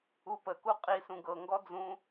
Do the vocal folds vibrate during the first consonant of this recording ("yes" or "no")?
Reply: no